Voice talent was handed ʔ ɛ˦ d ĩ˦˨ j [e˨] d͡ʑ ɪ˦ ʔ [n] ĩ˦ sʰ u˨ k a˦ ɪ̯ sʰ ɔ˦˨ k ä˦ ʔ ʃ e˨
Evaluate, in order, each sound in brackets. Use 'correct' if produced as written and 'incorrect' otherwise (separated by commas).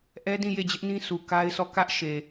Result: incorrect, correct